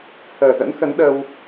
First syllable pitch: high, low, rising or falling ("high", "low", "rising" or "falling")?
low